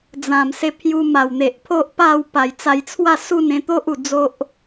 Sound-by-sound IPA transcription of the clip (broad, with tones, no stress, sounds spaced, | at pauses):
d͡z ã˨˩ m s e˧ pʰ j u˧ m a˨˩ w n̪ e˨ ʔ pʰ o˦ ʔ p a˥˧ w p a˨˩ j t͡s a˧ j t͡sʰ w a˥˧ s u˥˧ n ẽ˧ t̪ o˦ ʔ u˨˩ d͡z o˦ ʔ